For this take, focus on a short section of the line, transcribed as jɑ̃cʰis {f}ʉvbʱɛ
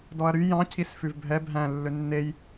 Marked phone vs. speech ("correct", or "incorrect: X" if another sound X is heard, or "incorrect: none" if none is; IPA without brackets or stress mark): correct